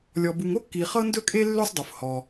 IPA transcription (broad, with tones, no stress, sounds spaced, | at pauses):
lʲ ɔ˩ b u˩ ŋ o˥ kː i˩ χ ɤ˥ n d ɵ˥ kʼ e˥ lː ø˥ sˤ dˤ u˩ f h ɔ˩